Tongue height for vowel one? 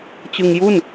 high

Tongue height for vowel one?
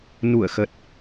high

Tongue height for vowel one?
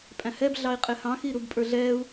low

